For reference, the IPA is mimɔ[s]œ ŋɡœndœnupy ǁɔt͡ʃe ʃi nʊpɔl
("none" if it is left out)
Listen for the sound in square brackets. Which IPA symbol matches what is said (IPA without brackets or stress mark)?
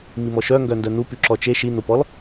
ʃ